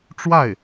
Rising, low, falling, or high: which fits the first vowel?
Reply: falling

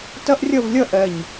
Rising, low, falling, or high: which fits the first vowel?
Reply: high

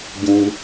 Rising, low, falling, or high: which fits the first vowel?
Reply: high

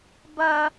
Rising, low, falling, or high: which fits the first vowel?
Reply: high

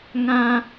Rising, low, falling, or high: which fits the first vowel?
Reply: high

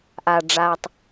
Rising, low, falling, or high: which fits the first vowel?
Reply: low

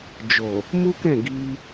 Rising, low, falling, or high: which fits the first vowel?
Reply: low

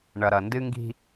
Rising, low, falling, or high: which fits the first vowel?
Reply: low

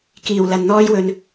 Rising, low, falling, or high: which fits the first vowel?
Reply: low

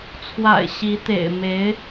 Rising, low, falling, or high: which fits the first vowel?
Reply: low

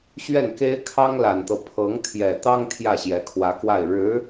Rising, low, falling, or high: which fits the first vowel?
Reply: falling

